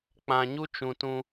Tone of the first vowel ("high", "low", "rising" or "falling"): low